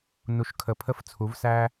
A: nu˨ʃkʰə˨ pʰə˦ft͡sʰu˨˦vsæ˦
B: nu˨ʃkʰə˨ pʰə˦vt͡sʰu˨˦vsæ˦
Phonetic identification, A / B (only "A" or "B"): A